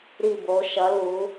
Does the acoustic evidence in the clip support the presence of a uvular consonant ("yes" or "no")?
no